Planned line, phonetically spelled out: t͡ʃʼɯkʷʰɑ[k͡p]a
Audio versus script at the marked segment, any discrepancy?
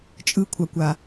yes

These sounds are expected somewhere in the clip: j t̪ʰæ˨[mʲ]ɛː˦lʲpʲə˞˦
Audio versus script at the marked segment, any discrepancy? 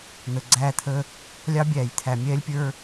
no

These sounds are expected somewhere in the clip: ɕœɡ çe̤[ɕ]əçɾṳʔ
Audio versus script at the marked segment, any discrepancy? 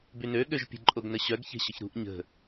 no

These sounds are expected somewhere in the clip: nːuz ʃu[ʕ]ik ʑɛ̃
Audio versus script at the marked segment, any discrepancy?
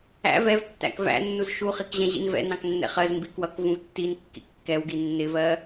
yes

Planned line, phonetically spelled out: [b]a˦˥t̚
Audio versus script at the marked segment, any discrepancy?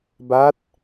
no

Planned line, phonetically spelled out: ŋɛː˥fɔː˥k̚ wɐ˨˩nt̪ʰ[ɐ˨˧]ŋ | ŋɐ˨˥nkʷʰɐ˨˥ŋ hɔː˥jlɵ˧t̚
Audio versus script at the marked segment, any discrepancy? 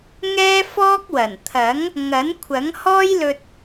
yes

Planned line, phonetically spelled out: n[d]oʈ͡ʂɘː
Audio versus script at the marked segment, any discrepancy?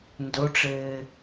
no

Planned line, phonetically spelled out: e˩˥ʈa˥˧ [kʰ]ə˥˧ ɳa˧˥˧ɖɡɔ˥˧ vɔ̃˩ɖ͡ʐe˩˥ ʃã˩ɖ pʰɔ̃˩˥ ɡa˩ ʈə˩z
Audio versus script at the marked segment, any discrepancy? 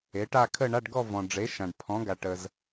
no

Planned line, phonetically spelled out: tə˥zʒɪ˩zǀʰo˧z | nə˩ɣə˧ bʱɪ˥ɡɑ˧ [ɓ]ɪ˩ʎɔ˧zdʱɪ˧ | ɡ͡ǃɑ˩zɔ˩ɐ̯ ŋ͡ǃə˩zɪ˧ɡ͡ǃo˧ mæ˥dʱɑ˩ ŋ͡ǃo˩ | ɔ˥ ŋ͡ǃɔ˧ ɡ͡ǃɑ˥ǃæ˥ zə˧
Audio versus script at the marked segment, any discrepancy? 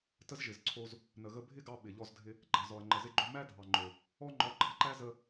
no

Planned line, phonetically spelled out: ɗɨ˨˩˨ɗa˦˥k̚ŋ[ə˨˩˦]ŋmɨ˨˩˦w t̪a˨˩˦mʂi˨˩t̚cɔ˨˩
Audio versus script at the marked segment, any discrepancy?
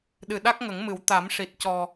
no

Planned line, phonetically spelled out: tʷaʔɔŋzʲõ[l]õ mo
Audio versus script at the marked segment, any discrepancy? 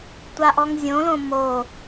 no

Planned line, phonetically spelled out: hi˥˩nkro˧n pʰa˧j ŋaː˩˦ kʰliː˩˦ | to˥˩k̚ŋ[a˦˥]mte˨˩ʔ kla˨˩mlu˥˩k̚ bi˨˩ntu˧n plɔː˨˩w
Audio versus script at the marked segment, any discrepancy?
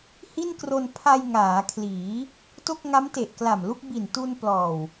no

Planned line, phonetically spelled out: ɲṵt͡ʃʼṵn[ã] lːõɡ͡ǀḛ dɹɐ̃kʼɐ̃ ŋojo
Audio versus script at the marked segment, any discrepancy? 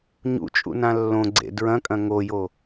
no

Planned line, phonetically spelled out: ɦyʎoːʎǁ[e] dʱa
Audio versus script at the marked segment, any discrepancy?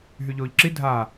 yes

